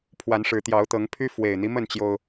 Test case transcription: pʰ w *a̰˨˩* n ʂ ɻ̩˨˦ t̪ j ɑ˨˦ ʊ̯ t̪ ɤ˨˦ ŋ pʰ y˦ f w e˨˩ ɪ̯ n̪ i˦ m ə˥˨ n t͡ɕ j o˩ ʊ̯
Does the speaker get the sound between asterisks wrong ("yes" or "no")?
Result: yes